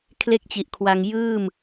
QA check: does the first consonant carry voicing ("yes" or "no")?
no